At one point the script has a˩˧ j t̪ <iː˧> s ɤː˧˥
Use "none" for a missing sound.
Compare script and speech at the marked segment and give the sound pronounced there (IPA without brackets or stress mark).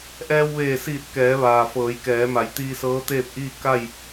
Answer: iː˧